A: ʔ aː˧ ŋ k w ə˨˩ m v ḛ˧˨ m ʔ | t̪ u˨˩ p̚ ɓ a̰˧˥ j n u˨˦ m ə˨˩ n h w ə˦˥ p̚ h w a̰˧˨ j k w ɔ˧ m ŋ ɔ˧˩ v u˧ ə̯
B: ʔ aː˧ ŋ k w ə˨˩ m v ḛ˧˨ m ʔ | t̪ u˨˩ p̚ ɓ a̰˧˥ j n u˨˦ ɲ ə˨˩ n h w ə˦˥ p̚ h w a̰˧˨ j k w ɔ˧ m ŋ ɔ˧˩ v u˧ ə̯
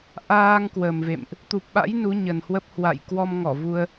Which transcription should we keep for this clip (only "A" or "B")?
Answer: B